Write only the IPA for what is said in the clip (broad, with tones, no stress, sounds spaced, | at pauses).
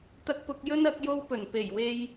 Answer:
t̪ ɐ˧ k̚ p ʊ˧ k̚ j ɵ˥ n ɐ˨˥ k̚ j o˥ w p ɵ˨˩ n p e˨˩ j w e˧ j